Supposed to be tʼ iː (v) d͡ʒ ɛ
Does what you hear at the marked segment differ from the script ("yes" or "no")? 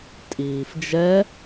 yes